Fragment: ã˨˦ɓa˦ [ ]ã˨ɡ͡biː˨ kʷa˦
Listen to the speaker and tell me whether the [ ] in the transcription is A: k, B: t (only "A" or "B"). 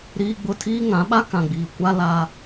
A